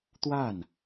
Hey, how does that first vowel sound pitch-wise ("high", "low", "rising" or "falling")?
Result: falling